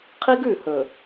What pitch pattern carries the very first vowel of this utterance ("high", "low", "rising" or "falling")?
high